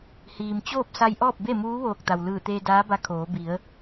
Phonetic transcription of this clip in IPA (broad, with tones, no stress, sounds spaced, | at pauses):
h iː˩ m t͡ɕ oː˥˨ p̚ s a˧ j ʔ ɔː˥˨ p̚ b e˥˨ m uː˧˥ ʋ oː˧˩ k̚ t̪ a˩ w l ɯː˧˩ t̪ eː˧ d aː˧˥ b a˧ kʰ oː˩˧ b i˩˧ ə̯